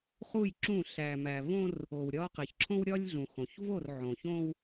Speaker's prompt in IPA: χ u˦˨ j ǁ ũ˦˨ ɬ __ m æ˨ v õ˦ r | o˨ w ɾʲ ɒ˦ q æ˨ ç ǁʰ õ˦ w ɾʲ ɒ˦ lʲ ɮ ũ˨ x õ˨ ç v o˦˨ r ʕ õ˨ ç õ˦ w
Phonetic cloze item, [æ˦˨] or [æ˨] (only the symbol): æ˨